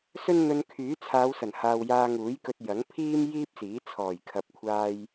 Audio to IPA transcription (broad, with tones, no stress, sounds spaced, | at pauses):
s ɵ˥ n n̪ ɵ˧ n kʰ yː˨˥ t͡sʰ aː˨˧ w s ɐ˨˩ n h aː˨ w j aː˧ ŋ uː˨˥ j k ɵ˧ t̚ j ɐ˨˥ ŋ pʰ iː˥ m j iː˥ p̚ s iː˨˥ t͡sʰ ɔː˨˩ j kʰ ɐ˨ p̚ kʷʰ aː˧ j